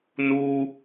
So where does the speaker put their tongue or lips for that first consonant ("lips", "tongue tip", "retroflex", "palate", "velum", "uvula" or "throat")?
tongue tip